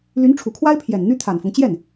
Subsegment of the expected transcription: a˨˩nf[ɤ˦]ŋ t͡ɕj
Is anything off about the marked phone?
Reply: no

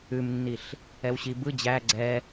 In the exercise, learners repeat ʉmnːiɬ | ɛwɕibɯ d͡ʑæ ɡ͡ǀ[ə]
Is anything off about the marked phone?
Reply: yes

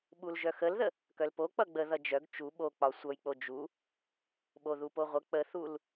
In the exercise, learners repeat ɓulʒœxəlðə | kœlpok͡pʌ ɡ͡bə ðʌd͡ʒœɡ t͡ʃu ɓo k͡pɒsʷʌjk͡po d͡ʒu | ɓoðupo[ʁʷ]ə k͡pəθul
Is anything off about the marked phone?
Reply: no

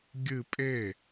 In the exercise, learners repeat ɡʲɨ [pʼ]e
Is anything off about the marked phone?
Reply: no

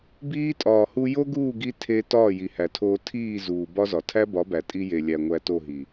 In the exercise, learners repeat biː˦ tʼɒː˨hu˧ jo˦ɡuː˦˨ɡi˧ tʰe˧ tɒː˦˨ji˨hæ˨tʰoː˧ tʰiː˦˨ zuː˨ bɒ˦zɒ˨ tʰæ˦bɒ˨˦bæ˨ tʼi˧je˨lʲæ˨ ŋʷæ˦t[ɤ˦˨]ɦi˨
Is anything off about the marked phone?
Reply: yes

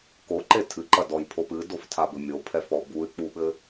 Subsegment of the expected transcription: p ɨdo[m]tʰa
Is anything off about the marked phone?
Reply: yes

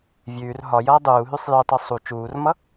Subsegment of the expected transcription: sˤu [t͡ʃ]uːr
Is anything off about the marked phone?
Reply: no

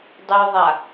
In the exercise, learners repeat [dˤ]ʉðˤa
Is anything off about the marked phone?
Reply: no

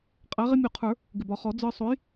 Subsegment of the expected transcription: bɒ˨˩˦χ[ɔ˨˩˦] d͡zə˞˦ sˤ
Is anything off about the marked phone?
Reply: no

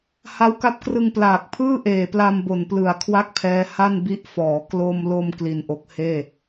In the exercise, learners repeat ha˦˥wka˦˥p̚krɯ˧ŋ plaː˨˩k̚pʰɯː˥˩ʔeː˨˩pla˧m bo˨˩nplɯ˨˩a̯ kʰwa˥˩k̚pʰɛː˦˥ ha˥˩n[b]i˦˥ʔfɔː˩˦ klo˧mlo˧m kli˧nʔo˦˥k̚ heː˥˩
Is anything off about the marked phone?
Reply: no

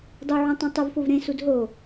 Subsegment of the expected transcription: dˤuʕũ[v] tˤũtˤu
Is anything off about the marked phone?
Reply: yes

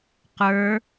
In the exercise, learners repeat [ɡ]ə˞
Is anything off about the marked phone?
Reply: yes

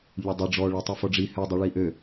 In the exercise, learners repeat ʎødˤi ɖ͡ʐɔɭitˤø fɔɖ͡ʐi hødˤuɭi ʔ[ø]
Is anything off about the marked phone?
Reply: no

